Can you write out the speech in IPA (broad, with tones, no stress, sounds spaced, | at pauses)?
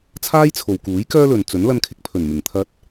t͡sʰ aː˥ j t͡sʰ o˨ w k uː˨˥ j k œː˥ l ɵ˨ n t͡s ɵ˨˥ n l ɐ˧ n kʰ ɪ˧ k̚ pʰ ɵ˨˩ n m ɪ˨˩ ŋ t̪ʰ ɐ˧ t̚